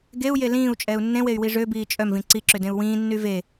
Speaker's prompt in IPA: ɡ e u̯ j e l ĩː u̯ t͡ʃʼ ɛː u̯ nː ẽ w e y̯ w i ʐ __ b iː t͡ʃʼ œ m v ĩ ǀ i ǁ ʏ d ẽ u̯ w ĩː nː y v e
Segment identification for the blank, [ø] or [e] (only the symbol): ø